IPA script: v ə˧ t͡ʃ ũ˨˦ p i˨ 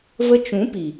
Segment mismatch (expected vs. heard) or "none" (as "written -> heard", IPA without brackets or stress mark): none